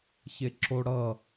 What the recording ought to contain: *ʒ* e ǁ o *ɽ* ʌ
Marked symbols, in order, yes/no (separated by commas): no, yes